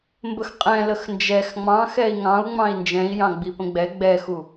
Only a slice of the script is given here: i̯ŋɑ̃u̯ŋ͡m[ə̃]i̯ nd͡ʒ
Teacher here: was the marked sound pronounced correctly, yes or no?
no